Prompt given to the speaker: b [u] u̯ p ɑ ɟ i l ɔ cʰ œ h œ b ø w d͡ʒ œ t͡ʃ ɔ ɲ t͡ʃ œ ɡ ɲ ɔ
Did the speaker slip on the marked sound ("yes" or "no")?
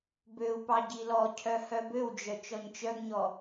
yes